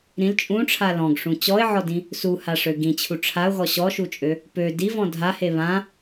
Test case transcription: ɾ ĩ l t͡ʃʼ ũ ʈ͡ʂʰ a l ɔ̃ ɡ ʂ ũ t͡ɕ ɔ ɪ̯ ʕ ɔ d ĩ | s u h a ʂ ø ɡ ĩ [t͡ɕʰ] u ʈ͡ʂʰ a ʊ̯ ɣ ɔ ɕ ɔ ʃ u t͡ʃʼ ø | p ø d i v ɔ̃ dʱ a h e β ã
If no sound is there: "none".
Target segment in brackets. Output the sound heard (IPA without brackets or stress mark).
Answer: t͡ɕʰ